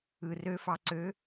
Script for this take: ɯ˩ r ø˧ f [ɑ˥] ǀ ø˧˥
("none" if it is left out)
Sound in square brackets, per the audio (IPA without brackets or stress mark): ɑ˧